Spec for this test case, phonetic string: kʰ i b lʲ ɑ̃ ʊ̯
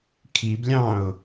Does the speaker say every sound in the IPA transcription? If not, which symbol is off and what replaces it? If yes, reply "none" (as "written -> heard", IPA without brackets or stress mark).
none